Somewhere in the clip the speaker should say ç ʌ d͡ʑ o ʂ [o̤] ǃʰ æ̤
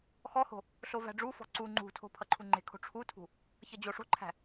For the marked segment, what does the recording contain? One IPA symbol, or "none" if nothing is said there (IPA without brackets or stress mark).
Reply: o̤